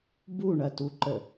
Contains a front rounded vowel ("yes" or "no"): no